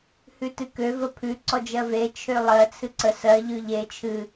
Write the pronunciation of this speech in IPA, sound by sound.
hʉtɨkø vəpʰʉ ǀɔd͡ʒɜve t͡ʃʰølˠɜ t͡sʰɨǀə sɜ ʎʉʎe t͡ʃʰɨ

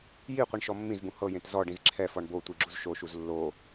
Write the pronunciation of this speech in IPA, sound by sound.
ji qʷiɳʃɔmːĩzbũ hɤjẽt zɔ ɖĩzǁʰɛfɔɳ bo tʷiɡ͡ǁuzʃoʃuz lːo

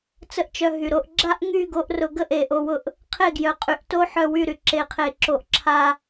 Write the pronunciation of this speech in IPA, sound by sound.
t͡sə˦ʔt͡ʃœ˧ɦy˨ ɾo˧ʔ ɡ͡ǁa˦ʔŋy˦˨ ɡo˧ʔrʊ˨ ɡə˦ʔe˨ ʔo˨wʊ˧ʔ | qʰe˦˨ɡjœ˨qʼy˨ʔto˦ ħœ˦˨wy˦˨ɾy˨ ǁe˨qʰe˨ǁo˨ʔ ǁʰa˨

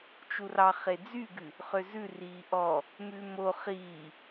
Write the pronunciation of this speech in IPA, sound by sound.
t͡ʃurɑ χed͡zyɡʉ | χøzʉ riːʔɔ | mʉmo χiː

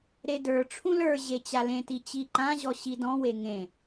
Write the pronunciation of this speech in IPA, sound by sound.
ɾedə˞ʈ͡ʂʰũ lə˞ ʑet͡ɕalẽti t͡ɕiǃãʑɔ ɕidɔ̃we ŋẽ

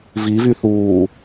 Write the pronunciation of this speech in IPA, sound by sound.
vivyθuː

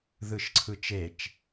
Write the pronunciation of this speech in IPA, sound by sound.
ðɯʃǀʰɯt͡ʃet͡ʃ

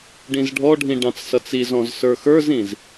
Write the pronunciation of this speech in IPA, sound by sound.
ɖĩzɖʱɔɖʱĩ ɖɑ̃t͡ssʌt͡sizɔ̃z sə˞xə˞zĩz

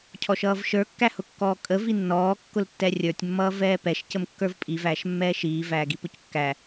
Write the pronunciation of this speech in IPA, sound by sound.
cʰɔʃʌːvʃə˞ kːæhʊkːɔːkʼə vinːɔː kːʊltːɛrʲə˞tʲ mːʌːvɛːpɛʃ cəmkːə˞vpʼi væːʃmːɛːʃiː væːɡipʊckːæ

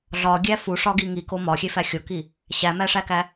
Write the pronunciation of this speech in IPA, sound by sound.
ɮɒɡʲæ fuʂɒɡi ŋiko mɒxʲefæ xʲoki | ɕæmæʂækæ

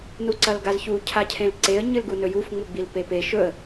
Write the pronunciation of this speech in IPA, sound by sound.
nuǀɐlɡazçu cʰacʰẽlǀeə̯ ɲɨlɡunɵjuf ŋ͡muɡ͡bilpepe ʃɵə̯

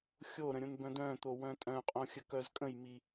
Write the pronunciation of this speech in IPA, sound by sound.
xʲoɾə̃ ɾʲõnbœ̃dœ̃t̪o wœ̃tʼœ̃qʼõ xʲəkœzkʼə̃jmi

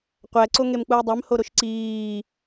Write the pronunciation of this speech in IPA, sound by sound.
qʷæ ǀoŋemk͡pui̯dˤem hoɾoʃǀiː

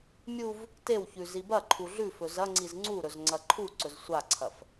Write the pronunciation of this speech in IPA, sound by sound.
mʲuv | tewçʉ zibɐǃʰu ɮʉfɵ zɐ ŋ͡ǀizŋ͡ǀuɾɵz ŋ͡ǀɐǃʰuǀɵz sʷaǀʰɐf

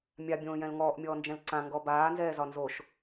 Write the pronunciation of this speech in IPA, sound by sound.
mʲabʲõːjɛ̃l ŋɔːʔmʲɔːnd͡ʒɛ̃l ǀãŋɡɔ baːnzɛːzɒ nzoʃ

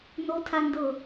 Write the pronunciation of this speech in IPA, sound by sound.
notʰandɤ

